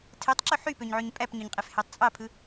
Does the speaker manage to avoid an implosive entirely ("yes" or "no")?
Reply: yes